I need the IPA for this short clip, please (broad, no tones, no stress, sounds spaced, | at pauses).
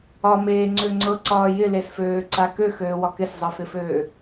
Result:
ɒ m eː ŋ͡ǀ ø ŋ͡ǀ ɤ ǀ ɒː j ɪ l e s f øː ǀ a k ø x øː w ɒ k ɪ s zˤ ɤ f ɪ f øː